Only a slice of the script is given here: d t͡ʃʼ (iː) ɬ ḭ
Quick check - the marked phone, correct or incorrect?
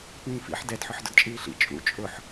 correct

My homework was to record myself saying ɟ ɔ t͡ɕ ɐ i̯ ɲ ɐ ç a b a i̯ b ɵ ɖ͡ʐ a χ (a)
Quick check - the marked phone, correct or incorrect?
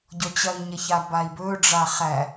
incorrect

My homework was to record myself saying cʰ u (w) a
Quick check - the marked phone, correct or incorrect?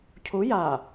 incorrect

